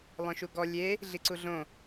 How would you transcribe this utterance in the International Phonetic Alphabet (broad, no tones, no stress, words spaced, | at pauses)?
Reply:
lˠœ̃ʃuɡɔ lʲe | ɮiǀuɮõ